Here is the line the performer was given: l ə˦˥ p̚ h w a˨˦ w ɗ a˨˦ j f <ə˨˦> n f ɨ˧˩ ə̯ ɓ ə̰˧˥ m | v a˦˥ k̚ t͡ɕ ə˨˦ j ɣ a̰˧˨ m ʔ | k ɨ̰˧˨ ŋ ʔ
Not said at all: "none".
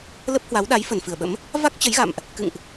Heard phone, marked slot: ə˧˩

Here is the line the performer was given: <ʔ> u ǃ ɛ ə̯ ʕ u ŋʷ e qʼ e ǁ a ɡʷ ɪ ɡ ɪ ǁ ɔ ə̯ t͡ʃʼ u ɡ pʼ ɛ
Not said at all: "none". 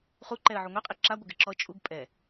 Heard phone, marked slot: χ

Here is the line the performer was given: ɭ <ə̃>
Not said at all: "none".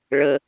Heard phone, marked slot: ə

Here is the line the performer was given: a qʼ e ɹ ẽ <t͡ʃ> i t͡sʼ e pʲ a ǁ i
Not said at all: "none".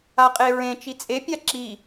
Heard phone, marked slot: t͡ʃ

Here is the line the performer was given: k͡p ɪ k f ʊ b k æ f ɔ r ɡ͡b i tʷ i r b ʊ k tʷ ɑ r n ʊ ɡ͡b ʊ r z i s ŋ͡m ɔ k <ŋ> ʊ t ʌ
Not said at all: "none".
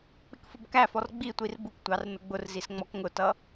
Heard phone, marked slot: ŋ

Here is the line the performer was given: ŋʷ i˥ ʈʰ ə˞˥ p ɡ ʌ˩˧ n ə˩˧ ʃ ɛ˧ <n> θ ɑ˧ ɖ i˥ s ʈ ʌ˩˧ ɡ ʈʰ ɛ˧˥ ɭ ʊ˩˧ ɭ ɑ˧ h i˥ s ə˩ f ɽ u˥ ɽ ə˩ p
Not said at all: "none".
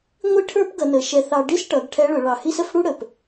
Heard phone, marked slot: none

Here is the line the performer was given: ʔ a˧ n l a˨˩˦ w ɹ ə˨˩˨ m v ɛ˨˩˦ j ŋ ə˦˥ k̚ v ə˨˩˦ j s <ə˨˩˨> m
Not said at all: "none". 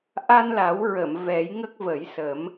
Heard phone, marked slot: ə˨˩˦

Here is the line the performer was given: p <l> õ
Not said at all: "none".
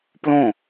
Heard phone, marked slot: l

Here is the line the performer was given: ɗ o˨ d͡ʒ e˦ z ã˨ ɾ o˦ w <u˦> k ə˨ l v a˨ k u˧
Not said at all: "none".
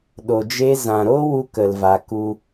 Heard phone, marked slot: u˦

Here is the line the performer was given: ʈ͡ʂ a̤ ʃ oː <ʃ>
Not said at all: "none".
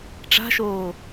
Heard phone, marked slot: none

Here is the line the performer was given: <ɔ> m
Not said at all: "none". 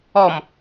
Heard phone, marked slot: ɔ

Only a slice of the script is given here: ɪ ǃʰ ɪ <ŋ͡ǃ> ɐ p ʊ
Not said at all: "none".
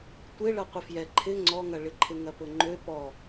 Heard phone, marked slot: ŋ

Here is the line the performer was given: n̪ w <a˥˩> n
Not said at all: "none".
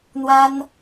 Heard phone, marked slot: a˥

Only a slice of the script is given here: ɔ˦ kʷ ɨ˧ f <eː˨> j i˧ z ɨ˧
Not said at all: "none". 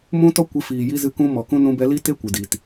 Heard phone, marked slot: iː˨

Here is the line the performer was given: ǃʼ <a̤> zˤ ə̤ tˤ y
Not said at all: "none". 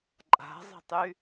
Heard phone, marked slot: a̤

